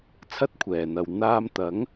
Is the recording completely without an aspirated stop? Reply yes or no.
no